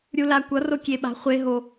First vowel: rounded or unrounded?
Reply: rounded